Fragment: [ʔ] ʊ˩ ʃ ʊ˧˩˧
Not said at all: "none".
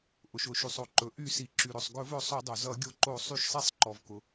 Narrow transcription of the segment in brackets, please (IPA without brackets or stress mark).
ʔ